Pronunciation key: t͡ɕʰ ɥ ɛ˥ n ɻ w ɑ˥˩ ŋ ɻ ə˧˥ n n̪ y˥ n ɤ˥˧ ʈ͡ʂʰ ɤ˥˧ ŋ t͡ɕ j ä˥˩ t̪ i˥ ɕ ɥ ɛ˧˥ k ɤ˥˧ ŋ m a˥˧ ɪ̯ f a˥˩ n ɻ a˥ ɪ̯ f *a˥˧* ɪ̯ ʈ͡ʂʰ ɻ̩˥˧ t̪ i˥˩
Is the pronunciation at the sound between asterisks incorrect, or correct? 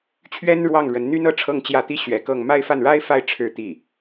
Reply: correct